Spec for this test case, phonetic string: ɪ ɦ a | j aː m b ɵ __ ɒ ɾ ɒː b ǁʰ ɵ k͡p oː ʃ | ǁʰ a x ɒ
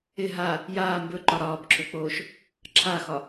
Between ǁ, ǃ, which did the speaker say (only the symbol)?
ǃ